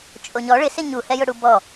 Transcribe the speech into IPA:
t͡ʃʼ o ɲ ɔ ɭ ɪ s ɪ ɲ u h ɛ j ʊ ɽ u b ɔ

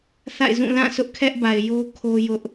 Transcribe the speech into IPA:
θ a̰˦˨ ɪ̯ z ũ˦˨ l ã˦˨ sʰ ʊ˦ ʔ kʰ ɛ˦ ʔ b a˨ ɪ̯ j o˦ kʰ o˦ j ʊ˦ ʔ

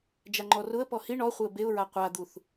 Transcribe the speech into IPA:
d͡ʒ a ŋ͡ǃ ɔ r ʊ ə̯ p ɔ h i ɳ ɔ χʷ ɪ ə̯ b e ʊ̯ ɹ a qʷ a d̪ u θ

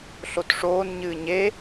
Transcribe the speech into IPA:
ɬ o t ʂ oː n ɲ ɨː ɲ e

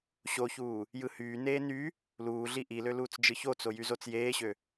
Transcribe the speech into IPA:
ɕ o ç uː | j ɯ h yː n eː n y | l uː ɮ i ʔ i l ø l uː t͡s d͡ʒ ɯ ç o t͡s o j y z o t͡s j eː ɕ ø

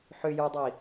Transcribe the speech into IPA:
ħ ʏ j ə˞ dˤ i

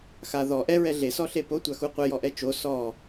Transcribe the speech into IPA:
x a ð ɔ ʔ ɛ ɹ ɛ ɮ e s ɔ ɬ e p o tʷ a x u qʷ ɛ j ɔ ʔ ɛ t͡ʃ o s ɔ

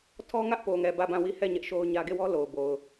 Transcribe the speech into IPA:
tʰ ɔ˦ ŋ ä˦ ʔ p o˨ ŋ ɛ˨ b ä˦˨ b ã˦˨ w i˦˨ h ɛ˦˨ ɲ ɛ˦ ʔ ʃ o˦ ʊ̯ ɲ ä˦ ɡ e˦˨ w ɔ˦ l o˨ ʊ̯ b o˨ ʊ̯

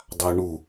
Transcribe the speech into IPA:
dˤ a w ɳ u

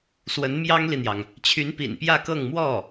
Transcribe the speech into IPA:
s w ə˧˥ n m j ɑ˥ ŋ l i˨ n̪ j ɑ˩ ŋ | t͡ɕʰ y˧˥ n p ḭ˨˩ n p j ä˥˧ k ɤ˥˧ ŋ m w ɔ˥˩

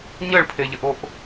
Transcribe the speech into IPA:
ɲ ə ɭ pʰ e ʎ ə ʔ o ʔ

